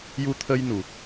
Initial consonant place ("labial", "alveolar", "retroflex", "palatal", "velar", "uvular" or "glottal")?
palatal